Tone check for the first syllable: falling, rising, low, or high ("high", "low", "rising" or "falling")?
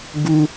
high